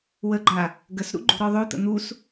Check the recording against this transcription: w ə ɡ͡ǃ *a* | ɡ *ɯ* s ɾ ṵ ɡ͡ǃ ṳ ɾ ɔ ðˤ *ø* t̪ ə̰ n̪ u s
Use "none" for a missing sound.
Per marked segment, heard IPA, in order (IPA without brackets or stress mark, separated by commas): a, ə, ø